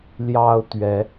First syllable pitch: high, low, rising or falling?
high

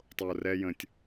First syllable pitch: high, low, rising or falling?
low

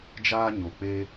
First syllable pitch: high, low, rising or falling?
high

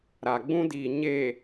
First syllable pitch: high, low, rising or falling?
low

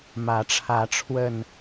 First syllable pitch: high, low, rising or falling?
rising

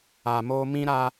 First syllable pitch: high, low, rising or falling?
low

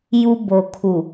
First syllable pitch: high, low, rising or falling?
high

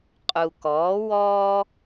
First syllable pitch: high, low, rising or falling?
low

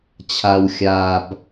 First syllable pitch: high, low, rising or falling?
low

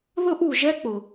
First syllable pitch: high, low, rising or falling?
high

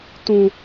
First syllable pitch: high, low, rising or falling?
low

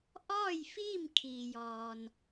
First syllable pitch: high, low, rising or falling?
falling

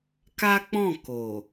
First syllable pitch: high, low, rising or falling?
high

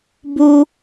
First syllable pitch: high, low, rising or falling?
high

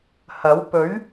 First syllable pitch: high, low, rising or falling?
rising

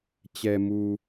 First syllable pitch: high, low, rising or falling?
low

